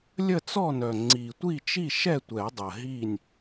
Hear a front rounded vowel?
yes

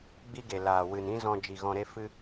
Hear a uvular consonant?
no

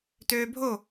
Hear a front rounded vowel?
yes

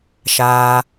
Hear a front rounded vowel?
no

